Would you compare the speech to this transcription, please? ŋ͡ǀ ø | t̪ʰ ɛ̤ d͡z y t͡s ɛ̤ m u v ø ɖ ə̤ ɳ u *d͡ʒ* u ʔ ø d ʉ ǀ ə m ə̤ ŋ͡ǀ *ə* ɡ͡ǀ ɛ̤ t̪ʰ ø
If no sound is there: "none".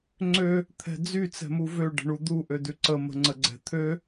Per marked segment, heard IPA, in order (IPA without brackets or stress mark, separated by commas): d̪, ə